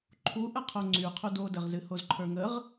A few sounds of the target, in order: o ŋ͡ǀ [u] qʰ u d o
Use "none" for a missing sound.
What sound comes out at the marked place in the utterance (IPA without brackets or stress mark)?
y